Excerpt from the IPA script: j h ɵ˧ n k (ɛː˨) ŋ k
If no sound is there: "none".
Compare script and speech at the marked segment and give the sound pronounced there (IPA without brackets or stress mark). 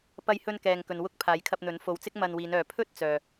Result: ɛː˨